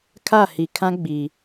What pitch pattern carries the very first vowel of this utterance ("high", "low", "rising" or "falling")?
falling